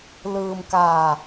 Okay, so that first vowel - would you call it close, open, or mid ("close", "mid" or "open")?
close